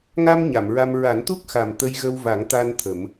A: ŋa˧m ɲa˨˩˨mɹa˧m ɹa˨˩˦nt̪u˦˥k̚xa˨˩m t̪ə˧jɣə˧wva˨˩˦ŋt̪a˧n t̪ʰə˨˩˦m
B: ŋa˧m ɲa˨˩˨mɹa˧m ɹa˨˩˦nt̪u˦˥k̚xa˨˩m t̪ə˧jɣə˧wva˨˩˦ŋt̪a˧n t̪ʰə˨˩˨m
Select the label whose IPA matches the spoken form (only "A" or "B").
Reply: A